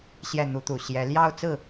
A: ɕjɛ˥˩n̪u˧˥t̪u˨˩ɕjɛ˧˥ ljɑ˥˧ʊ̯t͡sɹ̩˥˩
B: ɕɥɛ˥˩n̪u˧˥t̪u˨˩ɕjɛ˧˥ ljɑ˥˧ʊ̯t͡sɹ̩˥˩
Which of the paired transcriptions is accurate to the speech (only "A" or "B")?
A